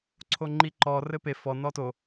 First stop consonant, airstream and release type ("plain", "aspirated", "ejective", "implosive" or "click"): click